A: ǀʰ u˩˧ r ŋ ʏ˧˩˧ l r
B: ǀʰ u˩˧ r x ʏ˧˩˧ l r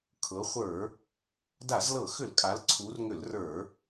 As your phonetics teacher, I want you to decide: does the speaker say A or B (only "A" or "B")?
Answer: A